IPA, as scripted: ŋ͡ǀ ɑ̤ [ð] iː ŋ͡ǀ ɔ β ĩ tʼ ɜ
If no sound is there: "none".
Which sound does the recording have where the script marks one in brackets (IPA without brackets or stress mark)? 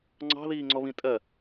ð